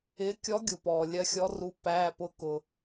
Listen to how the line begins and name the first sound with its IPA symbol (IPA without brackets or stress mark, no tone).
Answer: ɪː